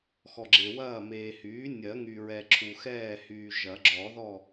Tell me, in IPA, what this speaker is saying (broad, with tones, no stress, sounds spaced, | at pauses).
x ɔ˨ ɡ͡ǁ e˨ w ɐː˥˨ m eː˨ h yː˩˥ nʲ ɜ˨˩˦ ŋ y˨ ɹ ɛ˨ ǁʰ u˨ x ɛː˥˨ h yː˨ ʒ ɐ˨˩˦ ɡ͡ǁ ɔ˨˩˦ ð ɔ˥˨